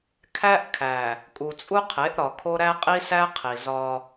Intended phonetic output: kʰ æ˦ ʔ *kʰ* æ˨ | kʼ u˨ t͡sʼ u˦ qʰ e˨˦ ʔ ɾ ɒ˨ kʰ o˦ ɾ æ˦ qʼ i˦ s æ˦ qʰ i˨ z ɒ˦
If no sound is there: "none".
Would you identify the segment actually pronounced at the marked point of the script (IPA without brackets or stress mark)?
kʰ